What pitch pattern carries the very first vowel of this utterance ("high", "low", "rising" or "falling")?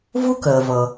high